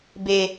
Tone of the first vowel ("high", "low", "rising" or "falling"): low